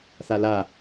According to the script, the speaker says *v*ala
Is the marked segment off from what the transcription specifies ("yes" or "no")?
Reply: yes